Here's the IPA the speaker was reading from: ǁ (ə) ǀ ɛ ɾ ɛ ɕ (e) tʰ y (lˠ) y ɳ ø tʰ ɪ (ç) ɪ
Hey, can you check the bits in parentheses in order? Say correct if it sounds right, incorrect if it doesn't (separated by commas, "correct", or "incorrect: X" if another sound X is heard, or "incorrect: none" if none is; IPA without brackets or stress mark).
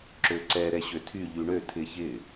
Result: incorrect: ø, incorrect: ø, incorrect: ʎ, correct